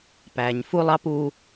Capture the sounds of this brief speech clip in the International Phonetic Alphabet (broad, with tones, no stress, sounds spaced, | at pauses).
p æː˨ ɲ f u˦ lˠ ɑ˦ p u˦